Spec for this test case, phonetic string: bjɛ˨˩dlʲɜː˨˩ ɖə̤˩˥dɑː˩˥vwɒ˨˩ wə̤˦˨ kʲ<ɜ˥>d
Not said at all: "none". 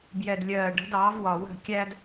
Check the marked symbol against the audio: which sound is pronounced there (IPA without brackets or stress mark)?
æ˥